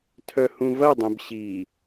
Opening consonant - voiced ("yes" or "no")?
no